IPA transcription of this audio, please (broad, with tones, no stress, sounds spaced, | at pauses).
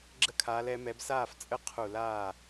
ɡ͡ǁ ə˧ kʰ aː˩˧ l ɛ˩˧ m ɛ˩˧ b s aː˥˩ f t͡sʼ ə˥˩ qʰ u˧˩˧ l aː˥˩